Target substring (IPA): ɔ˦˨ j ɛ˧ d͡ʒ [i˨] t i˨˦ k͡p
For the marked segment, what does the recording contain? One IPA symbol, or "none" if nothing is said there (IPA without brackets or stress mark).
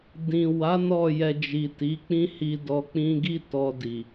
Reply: i˨